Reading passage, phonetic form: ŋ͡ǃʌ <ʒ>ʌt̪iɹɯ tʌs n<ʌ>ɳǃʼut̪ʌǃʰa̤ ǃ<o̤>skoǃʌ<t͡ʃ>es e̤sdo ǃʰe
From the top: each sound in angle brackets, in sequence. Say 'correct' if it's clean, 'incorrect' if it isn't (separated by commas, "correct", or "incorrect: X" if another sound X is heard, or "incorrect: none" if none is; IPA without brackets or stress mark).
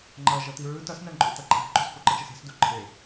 correct, incorrect: a, correct, correct